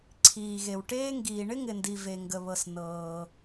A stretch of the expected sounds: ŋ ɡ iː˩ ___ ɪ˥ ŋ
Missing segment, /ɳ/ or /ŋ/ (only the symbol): ɳ